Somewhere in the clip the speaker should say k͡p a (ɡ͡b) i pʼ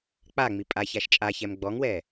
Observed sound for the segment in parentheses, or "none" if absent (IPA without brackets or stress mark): ŋ͡m